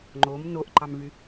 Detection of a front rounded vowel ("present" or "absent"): present